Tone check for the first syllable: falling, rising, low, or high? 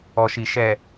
low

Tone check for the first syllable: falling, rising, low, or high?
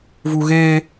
low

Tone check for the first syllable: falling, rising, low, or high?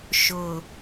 low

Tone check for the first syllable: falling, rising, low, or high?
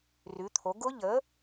rising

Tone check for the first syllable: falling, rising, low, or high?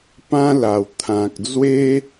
high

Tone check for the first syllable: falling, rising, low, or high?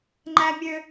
high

